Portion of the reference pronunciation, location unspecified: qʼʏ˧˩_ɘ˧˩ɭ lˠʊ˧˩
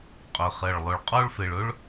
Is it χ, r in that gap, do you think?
χ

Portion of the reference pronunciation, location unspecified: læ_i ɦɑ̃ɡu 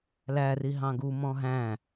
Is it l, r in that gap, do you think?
r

